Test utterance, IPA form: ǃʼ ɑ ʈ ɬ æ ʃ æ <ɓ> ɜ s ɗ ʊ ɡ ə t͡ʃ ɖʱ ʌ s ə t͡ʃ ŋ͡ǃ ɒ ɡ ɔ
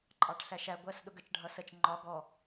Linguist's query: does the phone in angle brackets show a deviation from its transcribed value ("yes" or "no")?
yes